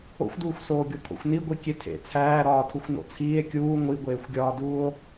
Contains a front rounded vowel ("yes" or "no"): no